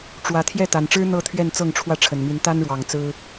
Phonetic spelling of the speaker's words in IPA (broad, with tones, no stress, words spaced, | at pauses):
ʈ͡ʂwä˨˦ t̪ʰjɛ˥˨t̪a˨˩nʈ͡ʂɻ̩˦ n̪ɤ˥˨t̪ʰɥɛ˥˨nt͡sɤ˥˨ŋʈ͡ʂʰwä˥˨ ʈ͡ʂʰə˨˩nmi˨˦nt̪a˦nɻwɑ˨˩ŋ t͡sɹ̩˦